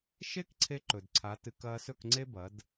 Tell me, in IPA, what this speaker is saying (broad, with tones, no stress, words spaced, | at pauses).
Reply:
ʃe˦k ǀʰe˦ǃɵ˨dǀʰa˨˦tɨ˨˦k ɐː˧sɵ˦˨kŋ͡ǀe˦ bɐ˨˦d